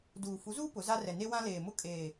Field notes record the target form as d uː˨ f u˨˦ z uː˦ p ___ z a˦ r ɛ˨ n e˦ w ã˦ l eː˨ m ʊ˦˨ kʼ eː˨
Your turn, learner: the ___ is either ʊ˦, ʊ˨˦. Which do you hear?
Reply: ʊ˨˦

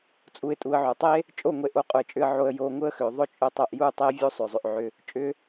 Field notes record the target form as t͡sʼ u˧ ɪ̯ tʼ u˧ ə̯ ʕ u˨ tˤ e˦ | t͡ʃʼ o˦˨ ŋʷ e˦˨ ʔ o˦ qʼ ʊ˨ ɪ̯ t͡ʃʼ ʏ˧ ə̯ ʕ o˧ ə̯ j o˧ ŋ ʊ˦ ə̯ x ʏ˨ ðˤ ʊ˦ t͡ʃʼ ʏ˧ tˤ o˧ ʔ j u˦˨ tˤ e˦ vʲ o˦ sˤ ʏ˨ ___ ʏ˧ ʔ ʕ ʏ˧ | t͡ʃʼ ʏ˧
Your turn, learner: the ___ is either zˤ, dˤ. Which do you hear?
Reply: zˤ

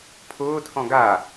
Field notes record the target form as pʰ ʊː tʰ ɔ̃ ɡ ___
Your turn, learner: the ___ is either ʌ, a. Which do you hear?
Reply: a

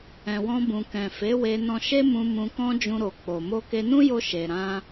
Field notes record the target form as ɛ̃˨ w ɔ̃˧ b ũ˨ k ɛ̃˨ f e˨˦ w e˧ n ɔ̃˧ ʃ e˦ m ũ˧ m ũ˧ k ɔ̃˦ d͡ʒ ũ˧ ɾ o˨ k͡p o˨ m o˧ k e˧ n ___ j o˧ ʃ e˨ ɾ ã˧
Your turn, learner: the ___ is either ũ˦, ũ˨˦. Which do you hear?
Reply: ũ˦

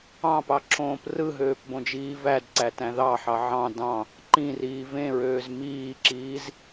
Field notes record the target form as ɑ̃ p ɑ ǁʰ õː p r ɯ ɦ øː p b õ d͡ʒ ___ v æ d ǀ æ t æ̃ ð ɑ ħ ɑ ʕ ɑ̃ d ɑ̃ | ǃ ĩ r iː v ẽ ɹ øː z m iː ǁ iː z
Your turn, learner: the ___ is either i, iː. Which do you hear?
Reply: iː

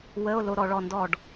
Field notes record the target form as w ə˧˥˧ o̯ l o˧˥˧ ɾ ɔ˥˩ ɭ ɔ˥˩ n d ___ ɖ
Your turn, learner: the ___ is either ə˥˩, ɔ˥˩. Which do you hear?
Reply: ɔ˥˩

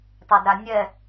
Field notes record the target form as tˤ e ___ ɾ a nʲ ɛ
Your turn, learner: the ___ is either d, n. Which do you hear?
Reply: d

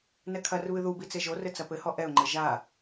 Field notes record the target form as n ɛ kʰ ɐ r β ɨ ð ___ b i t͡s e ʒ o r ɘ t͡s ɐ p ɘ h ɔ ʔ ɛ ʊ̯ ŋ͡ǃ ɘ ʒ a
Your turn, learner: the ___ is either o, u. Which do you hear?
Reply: u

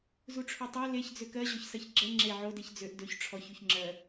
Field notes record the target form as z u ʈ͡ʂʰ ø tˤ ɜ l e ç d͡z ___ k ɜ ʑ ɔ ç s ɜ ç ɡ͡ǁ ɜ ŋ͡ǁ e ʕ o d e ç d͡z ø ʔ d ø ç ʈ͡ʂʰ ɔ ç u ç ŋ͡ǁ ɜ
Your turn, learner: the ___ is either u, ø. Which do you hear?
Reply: ø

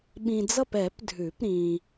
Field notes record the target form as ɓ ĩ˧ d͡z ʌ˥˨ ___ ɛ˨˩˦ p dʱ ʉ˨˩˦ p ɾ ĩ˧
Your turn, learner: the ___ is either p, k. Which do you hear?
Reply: p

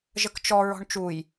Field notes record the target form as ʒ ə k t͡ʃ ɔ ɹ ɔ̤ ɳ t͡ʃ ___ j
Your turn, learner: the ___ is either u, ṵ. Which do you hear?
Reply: u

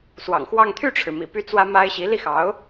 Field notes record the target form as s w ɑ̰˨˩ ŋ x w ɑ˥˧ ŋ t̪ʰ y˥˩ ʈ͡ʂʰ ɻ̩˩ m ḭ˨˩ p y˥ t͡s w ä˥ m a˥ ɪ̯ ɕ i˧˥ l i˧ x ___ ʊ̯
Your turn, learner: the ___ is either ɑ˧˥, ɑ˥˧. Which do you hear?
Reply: ɑ˧˥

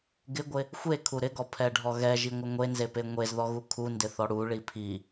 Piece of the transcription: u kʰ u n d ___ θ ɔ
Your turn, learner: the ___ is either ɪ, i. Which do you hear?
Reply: ɪ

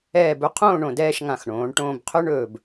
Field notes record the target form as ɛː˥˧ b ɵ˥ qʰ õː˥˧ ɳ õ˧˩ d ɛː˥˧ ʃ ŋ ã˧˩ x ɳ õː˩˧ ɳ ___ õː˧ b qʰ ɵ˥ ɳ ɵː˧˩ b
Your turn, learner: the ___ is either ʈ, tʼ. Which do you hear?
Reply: ʈ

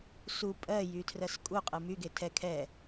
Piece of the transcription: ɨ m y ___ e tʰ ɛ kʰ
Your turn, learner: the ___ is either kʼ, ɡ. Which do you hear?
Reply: ɡ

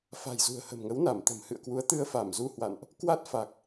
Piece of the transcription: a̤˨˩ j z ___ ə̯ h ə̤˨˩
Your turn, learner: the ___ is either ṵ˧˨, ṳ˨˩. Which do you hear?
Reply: ṳ˨˩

